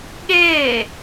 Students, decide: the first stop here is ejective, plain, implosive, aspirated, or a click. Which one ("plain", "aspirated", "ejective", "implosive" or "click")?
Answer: implosive